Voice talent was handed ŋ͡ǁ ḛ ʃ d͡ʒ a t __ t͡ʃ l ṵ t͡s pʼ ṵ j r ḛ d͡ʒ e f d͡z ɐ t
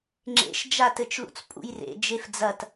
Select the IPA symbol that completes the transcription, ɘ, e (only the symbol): ɘ